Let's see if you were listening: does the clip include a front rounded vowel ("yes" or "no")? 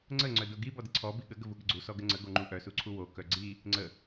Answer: yes